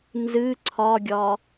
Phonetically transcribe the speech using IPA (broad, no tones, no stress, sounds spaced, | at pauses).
n z ɨ ǀʰ ɒ ɡʲ ɒ